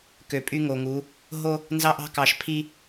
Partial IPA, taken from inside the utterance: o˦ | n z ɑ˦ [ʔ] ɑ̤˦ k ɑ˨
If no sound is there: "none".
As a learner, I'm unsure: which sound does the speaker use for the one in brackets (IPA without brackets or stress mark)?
ʔ